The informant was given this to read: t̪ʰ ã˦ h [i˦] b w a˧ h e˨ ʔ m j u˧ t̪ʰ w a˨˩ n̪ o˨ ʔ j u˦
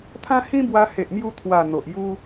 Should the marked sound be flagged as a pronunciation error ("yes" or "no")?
yes